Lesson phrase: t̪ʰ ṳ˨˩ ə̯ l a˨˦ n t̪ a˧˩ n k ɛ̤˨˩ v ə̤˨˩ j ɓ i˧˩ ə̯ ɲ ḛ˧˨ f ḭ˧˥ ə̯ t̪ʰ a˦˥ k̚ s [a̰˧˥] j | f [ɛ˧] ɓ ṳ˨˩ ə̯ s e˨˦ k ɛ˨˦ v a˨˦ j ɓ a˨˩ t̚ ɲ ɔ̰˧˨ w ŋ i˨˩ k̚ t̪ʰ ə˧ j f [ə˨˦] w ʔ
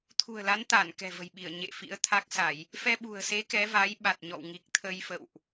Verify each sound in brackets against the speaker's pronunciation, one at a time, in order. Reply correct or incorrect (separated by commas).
incorrect, correct, incorrect